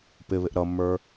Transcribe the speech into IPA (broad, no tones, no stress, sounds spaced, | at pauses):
p ɪ β ɪ ʔ ɾ ʌ mː ə˞